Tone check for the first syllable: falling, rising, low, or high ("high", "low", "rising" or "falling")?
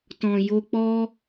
low